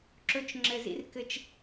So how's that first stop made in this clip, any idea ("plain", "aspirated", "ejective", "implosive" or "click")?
click